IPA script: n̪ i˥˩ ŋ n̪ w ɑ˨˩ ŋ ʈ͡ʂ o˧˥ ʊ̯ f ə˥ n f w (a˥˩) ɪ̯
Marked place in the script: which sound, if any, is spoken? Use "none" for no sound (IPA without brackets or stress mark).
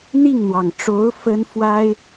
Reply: a˥